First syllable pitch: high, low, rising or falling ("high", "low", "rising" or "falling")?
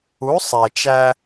rising